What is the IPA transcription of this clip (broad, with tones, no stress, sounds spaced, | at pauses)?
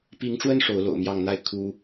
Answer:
p i˨˦ ŋ ʈ͡ʂ w ə˦ n ʂ o˨˦ ʊ̯ l o̰˨˩ ʊ̯ m j ɑ˥˨ ŋ n̪ a˥˨ ɪ̯ kʰ u˨˦